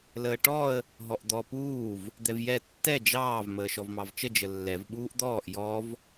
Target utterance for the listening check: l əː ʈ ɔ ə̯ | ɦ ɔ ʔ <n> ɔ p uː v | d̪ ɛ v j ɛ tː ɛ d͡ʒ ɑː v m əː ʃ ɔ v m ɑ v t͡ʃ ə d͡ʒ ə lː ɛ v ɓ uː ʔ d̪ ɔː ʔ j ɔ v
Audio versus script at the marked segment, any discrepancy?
yes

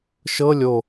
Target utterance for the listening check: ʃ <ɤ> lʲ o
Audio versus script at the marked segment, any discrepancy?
no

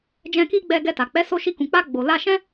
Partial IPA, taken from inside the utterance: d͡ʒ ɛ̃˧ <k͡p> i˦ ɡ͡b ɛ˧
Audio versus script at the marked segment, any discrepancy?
yes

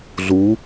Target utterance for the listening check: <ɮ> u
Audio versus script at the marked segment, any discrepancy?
no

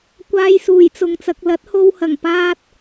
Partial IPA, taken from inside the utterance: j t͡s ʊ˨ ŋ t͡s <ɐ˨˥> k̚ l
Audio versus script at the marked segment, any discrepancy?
yes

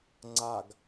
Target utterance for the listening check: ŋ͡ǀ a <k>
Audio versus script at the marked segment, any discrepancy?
yes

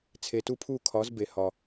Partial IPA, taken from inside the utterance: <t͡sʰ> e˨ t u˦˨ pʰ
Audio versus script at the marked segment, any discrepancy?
no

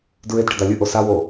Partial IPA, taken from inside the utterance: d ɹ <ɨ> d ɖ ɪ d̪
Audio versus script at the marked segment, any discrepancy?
yes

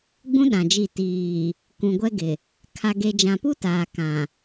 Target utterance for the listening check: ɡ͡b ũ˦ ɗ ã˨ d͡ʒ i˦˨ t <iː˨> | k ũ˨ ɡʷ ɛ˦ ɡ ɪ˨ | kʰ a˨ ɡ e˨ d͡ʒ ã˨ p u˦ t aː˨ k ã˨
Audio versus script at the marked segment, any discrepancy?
no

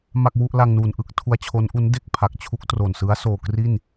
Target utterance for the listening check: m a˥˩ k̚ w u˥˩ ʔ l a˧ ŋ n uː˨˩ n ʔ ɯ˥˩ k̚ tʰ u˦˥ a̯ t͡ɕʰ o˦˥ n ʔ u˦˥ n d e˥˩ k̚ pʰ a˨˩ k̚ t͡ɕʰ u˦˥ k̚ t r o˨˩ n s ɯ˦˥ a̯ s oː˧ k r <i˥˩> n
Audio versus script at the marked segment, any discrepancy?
no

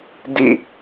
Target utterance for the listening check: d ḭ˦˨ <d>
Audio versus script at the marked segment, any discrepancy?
yes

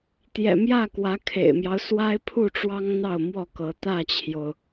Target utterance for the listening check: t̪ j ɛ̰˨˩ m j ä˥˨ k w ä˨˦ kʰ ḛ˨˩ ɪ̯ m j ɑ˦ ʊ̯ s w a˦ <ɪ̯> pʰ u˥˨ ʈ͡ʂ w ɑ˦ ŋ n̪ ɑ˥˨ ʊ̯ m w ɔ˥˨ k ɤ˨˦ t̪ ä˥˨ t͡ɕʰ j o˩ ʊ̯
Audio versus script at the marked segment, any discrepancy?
no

